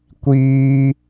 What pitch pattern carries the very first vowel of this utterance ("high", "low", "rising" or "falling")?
high